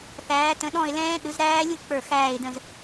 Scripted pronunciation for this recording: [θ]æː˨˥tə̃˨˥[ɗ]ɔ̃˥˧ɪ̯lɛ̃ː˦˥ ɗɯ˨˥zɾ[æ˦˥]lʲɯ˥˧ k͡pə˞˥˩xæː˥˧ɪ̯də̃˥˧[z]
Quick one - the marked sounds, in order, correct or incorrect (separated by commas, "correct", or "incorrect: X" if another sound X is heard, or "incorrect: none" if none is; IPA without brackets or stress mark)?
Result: correct, correct, incorrect: æː˦˥, correct